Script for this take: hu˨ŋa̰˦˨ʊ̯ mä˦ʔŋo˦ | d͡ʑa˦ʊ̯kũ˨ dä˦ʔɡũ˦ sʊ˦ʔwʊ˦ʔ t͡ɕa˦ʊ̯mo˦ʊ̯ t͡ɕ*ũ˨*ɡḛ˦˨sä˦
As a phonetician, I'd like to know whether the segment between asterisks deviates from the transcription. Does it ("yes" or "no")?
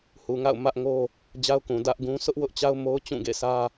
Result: yes